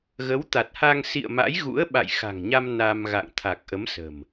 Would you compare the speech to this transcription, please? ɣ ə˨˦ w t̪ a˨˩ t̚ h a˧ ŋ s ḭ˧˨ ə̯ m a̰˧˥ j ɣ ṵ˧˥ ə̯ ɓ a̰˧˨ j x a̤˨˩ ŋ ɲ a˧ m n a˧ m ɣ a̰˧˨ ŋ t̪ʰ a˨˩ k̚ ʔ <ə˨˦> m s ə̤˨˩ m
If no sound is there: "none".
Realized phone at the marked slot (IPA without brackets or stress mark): ə˨˦